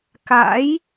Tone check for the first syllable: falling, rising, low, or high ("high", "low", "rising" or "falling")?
rising